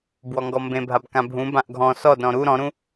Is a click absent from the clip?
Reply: yes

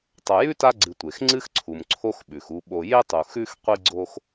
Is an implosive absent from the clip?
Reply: no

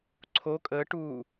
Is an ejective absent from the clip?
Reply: no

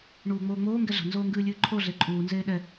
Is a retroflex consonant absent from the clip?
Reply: no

